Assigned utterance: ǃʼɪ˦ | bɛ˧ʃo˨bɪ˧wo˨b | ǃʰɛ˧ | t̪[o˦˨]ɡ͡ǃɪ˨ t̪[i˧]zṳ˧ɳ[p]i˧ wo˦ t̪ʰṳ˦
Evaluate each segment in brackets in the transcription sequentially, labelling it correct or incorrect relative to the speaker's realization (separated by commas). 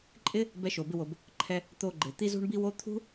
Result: incorrect, correct, incorrect